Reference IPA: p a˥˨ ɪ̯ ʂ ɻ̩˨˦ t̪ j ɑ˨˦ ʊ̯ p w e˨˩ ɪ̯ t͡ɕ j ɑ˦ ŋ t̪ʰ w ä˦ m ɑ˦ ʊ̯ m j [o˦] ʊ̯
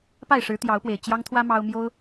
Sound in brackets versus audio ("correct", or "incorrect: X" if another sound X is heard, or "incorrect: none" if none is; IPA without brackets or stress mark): correct